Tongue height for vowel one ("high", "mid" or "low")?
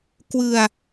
high